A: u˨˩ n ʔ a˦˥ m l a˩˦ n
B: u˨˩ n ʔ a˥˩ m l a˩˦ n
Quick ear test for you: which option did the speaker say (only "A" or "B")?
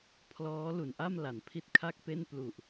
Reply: B